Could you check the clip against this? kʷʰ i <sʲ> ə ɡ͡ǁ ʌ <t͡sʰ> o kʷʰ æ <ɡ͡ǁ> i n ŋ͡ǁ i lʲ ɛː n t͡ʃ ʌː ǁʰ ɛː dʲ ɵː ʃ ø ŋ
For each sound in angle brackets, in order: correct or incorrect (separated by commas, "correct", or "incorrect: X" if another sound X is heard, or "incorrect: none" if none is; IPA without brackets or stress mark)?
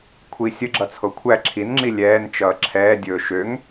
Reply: correct, correct, incorrect: ǁʰ